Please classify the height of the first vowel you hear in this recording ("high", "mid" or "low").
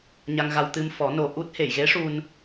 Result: low